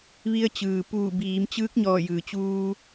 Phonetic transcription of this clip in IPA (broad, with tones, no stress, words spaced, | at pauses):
ʋi˧ə̯t͡ɕɯː˩puː˧˩ biː˩˧mt͡ɕɯː˧˥k̚ɲɔː˧˩ jɯː˩t͡ɕuː˧